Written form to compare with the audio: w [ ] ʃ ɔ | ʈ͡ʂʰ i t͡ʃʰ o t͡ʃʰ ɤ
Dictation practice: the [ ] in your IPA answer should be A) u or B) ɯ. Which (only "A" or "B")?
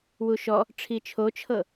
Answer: A